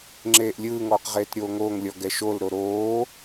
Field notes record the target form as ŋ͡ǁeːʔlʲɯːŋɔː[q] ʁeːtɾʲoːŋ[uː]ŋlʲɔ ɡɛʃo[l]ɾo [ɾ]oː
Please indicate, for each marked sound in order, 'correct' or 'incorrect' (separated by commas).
correct, incorrect, correct, correct